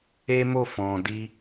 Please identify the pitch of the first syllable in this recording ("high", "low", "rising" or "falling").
high